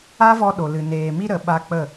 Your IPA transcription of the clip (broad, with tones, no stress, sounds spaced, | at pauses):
a˦ v ɔ˧ ɗ o˨ l ɨ˨ n eː˨ m i˦ ɾ ə˨˦ ɓ a˧ k͡p ə˦˨